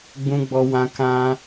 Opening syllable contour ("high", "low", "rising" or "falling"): high